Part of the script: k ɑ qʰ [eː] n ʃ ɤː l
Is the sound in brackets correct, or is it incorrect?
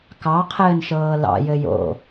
incorrect